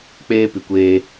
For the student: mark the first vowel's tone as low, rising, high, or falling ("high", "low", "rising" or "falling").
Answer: high